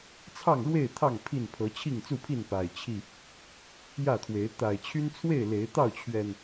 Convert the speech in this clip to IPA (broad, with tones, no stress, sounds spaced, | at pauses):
t͡sʰ ɑ˥˨ ŋ ɻ w e˥˨ ɪ̯ t̪ʰ ɑ˥˨ ŋ pʰ i˥˨ n pʰ ɤ˨˦ t͡ɕʰ i˥˨ ŋ t͡s u˥˨ pʰ i˥˨ n p a˨˩ ɪ̯ t͡ɕʰ i˥˨ | j ä˥˨ t̪ʰ w e˨˦ ɪ̯ t̪ a˨˩ ɪ̯ t͡ɕʰ y˦ n t͡sʰ w e˥˨ ɪ̯ l e˨˦ ɪ̯ t̪ ɑ˥˨ ʊ̯ t͡ɕʰ ɥ ɛ˨˩ n